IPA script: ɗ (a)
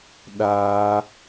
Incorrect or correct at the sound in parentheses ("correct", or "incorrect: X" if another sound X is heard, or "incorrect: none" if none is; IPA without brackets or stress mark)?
correct